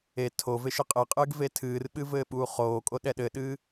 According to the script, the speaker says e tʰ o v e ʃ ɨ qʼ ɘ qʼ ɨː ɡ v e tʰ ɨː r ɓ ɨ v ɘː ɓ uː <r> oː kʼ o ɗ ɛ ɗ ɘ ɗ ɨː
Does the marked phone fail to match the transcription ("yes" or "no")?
yes